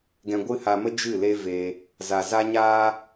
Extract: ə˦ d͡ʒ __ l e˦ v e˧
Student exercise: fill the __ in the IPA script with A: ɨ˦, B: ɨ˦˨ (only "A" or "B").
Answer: B